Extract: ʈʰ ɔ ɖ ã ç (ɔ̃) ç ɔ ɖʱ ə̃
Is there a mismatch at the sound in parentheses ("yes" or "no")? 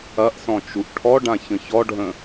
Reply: yes